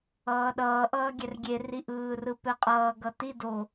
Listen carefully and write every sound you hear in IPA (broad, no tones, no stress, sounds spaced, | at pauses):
ʌː ɗ ʌː ʔ ʌː ɡʲ ɛ r ɡʲ e r i ʔ ɯː r ɯ p ɛ qʼ ʌː ɡ ʌ t i d o